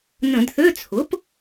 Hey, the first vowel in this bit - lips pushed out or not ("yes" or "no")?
no